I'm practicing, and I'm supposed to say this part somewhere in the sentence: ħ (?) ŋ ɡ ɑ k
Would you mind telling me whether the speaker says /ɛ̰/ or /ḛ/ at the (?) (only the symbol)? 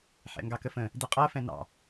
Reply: ɛ̰